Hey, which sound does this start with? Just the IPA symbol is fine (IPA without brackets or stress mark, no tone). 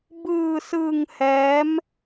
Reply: b